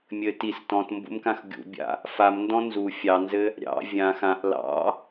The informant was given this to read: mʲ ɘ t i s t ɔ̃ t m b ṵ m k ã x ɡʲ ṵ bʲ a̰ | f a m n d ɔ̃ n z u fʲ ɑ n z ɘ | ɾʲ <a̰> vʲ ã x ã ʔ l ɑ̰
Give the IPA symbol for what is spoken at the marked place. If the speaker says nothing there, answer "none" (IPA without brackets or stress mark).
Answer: ɑ̰